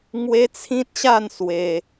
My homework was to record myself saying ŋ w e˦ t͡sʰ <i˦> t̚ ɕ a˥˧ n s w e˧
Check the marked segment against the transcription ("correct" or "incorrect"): incorrect